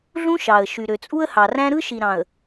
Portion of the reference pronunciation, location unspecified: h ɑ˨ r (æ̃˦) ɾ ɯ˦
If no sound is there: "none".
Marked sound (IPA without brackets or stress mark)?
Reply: æ̃˦